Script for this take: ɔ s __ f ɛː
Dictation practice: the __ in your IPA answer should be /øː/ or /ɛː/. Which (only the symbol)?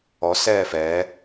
ɛː